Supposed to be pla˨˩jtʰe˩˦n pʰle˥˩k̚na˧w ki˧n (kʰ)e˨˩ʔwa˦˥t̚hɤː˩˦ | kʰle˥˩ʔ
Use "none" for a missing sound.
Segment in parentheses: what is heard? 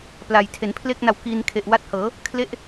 kʰ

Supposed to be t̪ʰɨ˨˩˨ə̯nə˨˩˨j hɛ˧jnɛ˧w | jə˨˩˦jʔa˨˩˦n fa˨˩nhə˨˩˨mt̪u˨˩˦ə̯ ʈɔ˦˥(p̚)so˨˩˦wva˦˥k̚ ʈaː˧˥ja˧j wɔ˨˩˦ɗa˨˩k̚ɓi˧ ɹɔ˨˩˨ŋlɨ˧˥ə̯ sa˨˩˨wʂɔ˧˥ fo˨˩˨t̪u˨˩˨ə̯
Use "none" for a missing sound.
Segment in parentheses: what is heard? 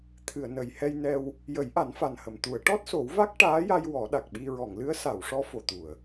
t̚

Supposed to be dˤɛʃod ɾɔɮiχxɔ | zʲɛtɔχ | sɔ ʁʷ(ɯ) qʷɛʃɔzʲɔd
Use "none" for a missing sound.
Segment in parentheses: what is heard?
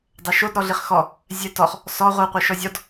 ɯ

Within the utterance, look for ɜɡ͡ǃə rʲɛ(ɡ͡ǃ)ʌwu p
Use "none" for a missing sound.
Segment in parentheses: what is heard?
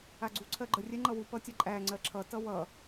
ŋ͡ǃ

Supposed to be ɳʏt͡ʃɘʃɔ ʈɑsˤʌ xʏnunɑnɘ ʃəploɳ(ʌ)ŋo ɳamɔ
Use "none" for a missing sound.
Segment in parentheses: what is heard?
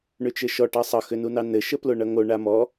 ʌ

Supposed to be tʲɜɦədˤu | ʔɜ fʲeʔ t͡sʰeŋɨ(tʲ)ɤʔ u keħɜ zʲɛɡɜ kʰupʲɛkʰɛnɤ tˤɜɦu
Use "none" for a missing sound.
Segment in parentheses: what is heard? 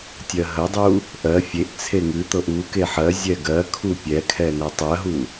t̪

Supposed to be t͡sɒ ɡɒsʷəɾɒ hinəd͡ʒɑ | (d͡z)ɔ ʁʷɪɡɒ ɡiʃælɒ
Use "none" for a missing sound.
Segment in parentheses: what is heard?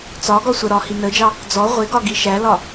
d͡z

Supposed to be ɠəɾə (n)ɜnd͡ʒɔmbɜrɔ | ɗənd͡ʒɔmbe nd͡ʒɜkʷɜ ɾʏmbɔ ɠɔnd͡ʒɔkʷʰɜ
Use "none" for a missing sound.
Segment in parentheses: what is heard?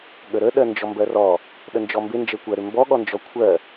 ɗ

